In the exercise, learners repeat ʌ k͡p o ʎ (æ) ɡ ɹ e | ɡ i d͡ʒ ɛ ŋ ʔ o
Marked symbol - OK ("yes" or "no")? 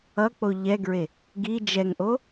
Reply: no